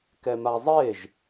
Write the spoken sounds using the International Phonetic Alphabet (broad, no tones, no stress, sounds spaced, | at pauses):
k ɛ m a zˤ e ʒ